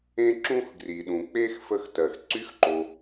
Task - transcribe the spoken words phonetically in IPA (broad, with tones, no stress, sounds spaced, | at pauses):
ẽ˥ ǁ ũ˥ x ɡ r i˩ ɗ ũ˩ k͡p e˥ x f ə˥ x t ɜ˩ x ǀ y˥ x ǃ o˩